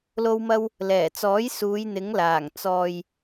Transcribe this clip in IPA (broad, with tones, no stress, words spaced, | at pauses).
lo˧wmɐ˧w | lɛː˨˩t͡sɔː˨˥j suː˨˧jn̪ɪ˨˥ŋlaː˨˩ŋ t͡sɔː˨j